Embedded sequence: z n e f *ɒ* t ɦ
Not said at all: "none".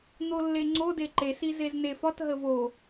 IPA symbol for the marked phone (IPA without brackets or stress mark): ɒ